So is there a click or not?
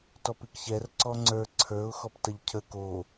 yes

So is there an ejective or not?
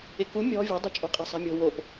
yes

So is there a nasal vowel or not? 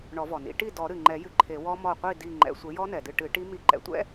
no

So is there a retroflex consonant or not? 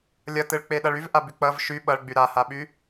yes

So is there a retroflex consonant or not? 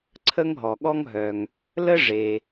yes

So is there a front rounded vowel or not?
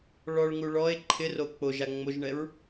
no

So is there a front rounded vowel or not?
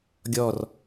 no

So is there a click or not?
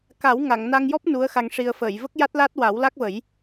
no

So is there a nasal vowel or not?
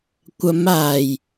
no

